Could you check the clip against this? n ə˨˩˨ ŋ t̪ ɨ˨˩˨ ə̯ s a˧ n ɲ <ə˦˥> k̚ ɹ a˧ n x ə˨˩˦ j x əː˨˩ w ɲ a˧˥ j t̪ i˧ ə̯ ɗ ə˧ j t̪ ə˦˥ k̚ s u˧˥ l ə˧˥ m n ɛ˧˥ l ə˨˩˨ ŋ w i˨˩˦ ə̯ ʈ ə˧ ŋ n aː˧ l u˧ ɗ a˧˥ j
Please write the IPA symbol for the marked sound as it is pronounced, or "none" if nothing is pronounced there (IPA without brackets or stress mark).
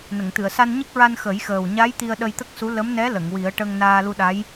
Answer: ə˦˥